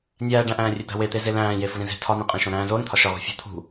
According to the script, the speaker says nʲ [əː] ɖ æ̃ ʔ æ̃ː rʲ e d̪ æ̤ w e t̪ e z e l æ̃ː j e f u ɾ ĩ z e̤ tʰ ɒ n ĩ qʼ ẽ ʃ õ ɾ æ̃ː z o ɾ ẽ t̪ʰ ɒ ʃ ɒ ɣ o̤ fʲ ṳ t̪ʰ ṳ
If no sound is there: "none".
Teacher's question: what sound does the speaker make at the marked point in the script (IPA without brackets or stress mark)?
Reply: æː